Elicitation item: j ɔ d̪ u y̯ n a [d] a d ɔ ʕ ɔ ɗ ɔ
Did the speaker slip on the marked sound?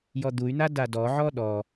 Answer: no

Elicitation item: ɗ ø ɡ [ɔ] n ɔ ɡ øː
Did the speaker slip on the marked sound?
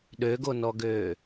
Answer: yes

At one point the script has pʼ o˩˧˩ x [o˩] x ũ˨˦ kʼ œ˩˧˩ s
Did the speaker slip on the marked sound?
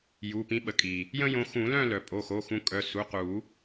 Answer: yes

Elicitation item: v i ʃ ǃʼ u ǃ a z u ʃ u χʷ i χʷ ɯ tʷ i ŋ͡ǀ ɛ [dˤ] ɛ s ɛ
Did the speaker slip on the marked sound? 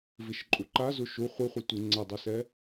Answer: no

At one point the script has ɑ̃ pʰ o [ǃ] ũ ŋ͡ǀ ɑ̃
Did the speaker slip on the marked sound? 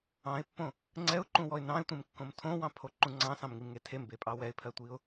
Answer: no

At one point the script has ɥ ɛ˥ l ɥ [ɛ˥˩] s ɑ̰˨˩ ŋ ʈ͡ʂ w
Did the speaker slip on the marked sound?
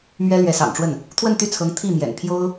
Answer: yes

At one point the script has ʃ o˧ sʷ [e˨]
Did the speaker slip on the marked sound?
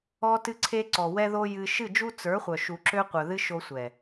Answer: yes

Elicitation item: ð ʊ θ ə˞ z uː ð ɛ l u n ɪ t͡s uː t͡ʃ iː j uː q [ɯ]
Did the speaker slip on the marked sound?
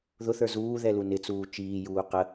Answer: yes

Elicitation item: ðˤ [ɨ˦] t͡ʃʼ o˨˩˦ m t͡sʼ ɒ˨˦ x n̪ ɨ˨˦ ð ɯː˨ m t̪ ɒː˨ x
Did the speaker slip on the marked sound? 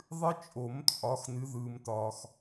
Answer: no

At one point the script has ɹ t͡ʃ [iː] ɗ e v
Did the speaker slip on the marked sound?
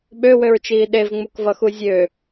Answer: no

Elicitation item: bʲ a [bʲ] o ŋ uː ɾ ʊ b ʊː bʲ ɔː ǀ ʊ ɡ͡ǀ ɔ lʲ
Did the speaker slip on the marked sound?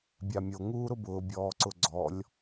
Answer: yes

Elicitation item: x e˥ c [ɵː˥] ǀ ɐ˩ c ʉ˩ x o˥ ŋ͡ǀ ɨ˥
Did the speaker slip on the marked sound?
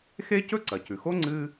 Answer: yes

